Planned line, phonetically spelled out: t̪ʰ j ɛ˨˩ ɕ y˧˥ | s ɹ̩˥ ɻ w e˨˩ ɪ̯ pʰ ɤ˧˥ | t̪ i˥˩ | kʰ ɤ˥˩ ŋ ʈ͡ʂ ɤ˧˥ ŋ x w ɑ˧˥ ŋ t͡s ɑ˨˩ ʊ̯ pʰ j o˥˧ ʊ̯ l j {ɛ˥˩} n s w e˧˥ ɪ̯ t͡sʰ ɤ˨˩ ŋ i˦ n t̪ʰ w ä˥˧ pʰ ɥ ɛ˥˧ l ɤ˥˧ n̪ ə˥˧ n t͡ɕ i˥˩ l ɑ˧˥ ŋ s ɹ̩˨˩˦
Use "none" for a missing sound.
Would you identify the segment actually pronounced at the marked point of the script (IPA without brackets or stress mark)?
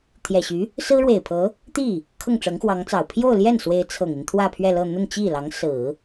ɛ˥˩